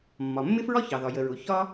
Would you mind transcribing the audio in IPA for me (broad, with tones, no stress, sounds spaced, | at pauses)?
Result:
mː ɒ˩ mː ɪ˥ f ɹ ɒ˥ ç ɑ˩ ð ɒ˩ j ə˩ ɹ ʊ˩ ç ɒ˥